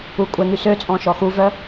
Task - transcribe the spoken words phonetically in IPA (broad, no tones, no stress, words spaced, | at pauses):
ukʷʼɛŋy søt͡sʼɔ̃ ʃɔxuvœ